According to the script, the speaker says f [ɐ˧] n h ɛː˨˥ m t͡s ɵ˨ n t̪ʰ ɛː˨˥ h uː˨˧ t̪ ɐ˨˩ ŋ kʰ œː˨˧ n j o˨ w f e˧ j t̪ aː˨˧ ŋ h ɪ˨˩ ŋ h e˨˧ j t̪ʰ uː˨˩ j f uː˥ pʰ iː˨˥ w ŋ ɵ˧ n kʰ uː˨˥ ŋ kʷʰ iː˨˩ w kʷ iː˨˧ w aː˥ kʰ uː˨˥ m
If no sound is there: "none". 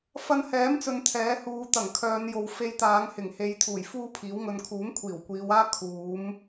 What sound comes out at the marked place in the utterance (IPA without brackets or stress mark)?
ɐ˧